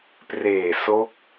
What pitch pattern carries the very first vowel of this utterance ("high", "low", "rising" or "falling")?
low